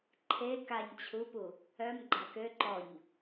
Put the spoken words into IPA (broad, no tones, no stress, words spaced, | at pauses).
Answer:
ǃʰe kaɲ t͡ɕʰupu | œm ɡ͡ǃakø ǃɔɲ